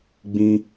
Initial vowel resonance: nasal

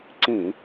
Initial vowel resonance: nasal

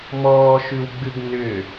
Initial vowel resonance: oral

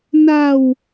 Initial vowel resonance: oral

